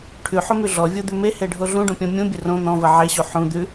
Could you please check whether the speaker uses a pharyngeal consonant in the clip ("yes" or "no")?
yes